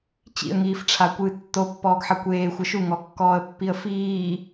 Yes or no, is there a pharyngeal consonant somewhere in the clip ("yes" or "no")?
yes